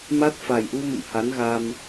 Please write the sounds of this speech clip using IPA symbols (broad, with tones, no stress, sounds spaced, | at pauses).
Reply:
m a˦˥ t̚ f a˨˩ j ʔ u˧ m ə̰˧˨ m h a˨˦ n ɣ a˧ m